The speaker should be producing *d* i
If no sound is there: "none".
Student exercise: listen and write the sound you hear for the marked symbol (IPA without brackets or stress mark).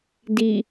d